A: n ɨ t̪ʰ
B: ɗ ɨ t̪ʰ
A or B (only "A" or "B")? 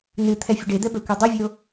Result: A